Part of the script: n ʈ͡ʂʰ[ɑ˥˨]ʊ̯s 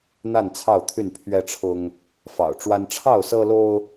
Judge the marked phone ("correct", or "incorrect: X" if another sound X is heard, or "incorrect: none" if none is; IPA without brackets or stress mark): correct